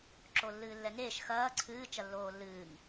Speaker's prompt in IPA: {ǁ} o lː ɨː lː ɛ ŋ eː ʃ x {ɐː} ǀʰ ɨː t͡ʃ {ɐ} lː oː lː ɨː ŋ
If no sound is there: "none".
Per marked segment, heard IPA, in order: ǁ, ɐː, ɐ

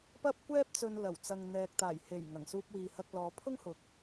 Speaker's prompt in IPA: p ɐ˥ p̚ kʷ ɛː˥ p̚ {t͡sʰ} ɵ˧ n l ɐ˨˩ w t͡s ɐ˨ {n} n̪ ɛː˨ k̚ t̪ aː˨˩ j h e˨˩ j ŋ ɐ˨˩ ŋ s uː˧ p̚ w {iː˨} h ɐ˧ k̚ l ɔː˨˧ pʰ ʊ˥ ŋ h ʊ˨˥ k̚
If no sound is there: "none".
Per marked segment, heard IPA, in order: t͡s, ŋ, iː˨

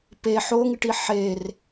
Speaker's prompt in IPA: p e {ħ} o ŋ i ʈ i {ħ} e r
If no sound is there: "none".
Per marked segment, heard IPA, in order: ħ, ħ

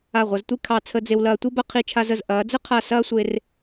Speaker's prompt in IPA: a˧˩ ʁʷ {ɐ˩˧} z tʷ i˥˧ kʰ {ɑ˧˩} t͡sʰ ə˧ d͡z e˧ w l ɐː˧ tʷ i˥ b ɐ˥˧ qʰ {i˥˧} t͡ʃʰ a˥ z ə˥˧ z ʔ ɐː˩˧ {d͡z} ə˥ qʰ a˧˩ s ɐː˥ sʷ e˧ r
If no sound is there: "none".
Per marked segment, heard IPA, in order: ɐ˩˧, ɑ˧˩, i˥˧, d͡z

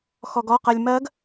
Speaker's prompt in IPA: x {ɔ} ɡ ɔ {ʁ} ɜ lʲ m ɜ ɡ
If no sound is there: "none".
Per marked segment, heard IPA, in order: ɔ, q

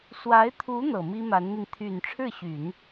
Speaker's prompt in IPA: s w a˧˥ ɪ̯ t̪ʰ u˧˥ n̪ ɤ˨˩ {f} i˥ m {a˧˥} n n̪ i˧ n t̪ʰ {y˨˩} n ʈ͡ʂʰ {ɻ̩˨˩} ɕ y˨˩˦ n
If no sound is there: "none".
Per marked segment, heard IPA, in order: m, a˧˥, y˨˩, ɻ̩˥˩

